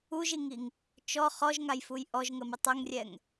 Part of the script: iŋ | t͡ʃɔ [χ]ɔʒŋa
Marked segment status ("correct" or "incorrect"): correct